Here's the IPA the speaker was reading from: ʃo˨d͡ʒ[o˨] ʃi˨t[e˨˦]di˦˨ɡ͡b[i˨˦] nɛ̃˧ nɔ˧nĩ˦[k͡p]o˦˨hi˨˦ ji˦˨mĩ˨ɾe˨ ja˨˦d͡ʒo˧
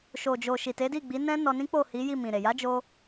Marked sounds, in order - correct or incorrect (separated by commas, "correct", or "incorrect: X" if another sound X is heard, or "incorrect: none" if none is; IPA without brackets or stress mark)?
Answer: correct, correct, correct, correct